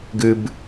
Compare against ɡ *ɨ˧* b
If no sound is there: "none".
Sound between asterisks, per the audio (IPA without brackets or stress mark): ɨ˧